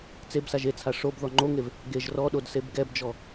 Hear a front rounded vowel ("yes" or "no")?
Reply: no